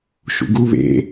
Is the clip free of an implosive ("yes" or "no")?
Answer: yes